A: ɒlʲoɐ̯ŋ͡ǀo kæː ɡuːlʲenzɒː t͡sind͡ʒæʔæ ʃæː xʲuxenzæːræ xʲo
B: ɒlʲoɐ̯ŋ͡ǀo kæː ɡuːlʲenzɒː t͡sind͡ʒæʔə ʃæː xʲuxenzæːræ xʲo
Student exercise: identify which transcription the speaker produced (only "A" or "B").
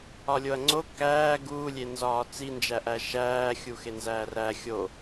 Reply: A